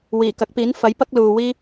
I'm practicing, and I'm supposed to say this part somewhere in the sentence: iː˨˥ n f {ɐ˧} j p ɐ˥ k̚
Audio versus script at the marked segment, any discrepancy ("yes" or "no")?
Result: yes